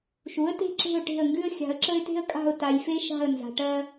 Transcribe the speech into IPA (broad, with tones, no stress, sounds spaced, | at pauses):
ʃ u˩˥ ə̯ t e̤˦˨ ǁ e̤˦˨ ʊ̯ ʈ e̤˦˨ ə̯ ŋ ɡ ʉ˦ ə̯ xʲ a̤˨ ə̯ ǁ ə˦ ɪ̯ t e̤˦ ə̯ kʼ a̤˦˨ ʊ̯ t a˨ j f e˦ ʃ a̤˦˨ ə̯ n z a̤˨ ʈ ɜ˦